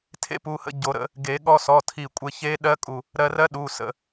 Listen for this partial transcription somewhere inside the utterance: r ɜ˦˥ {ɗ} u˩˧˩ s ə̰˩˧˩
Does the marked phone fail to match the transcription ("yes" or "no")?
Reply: no